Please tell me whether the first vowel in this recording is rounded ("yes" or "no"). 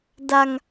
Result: no